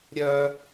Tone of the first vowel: high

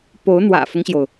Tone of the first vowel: rising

